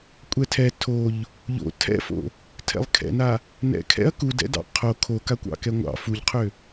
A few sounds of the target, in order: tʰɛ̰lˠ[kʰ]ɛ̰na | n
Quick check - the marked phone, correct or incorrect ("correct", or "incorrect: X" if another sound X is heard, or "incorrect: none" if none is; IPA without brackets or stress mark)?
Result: correct